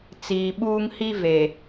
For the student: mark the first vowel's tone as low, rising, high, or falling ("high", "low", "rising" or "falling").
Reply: low